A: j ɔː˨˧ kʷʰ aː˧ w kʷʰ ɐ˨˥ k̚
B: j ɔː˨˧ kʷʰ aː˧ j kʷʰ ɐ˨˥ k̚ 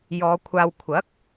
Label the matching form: A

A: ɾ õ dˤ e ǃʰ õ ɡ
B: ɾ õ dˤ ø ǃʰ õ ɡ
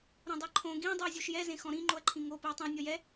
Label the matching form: A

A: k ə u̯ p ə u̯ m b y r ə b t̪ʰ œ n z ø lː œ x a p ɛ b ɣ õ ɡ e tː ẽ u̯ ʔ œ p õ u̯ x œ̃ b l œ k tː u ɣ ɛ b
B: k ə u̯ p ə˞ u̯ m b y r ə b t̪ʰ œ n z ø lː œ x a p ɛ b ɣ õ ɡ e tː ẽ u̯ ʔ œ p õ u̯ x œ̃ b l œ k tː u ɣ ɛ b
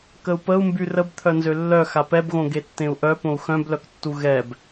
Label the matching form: A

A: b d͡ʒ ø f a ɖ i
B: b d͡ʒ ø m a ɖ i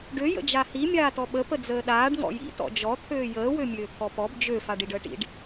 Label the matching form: A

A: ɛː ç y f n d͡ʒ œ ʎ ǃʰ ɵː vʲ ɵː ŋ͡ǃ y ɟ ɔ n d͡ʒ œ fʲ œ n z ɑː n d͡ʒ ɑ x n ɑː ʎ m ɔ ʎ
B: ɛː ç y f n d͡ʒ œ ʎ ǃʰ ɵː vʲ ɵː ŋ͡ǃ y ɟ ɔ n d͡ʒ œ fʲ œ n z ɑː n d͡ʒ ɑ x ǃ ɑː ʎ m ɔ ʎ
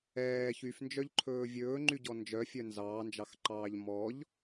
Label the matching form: B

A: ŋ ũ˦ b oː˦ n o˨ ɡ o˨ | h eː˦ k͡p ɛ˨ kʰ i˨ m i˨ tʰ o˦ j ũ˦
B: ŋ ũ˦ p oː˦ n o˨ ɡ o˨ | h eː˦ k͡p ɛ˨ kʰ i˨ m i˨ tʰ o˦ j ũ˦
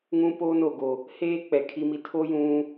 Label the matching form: B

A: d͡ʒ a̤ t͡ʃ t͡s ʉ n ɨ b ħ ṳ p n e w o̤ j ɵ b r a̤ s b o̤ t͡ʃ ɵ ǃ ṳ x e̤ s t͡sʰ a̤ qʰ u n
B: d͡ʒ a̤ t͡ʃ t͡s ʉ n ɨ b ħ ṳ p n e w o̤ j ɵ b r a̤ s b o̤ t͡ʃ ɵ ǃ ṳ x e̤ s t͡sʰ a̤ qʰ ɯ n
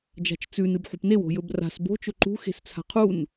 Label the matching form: A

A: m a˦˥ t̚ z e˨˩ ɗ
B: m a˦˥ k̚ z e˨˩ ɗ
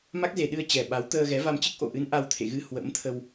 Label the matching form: B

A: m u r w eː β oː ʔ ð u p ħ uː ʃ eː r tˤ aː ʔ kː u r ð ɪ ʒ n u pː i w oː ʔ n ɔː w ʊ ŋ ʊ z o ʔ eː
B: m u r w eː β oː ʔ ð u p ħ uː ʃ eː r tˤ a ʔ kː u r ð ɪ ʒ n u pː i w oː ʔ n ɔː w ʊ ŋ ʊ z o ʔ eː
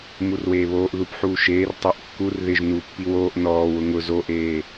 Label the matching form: B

